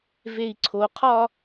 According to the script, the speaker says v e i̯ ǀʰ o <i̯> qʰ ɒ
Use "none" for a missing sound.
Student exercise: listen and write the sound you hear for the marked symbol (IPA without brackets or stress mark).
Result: none